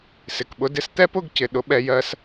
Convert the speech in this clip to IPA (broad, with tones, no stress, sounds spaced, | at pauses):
s ɪ˨ k ɓ ʊ˧ d ɪ˦ s t̪ ɛ˦ p ʊ˦˨ ɡ c ɪ˨ ɗ ʊ˧ ɓ ɛ˧ j ɜ˧ s